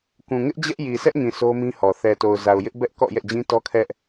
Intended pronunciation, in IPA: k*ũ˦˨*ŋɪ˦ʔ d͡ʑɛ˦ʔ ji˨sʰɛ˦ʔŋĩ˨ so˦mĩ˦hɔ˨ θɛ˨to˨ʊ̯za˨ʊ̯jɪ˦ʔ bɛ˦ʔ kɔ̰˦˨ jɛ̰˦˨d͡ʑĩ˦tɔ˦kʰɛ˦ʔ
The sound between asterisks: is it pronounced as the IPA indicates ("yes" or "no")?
no